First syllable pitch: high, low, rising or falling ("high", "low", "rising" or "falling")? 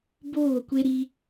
falling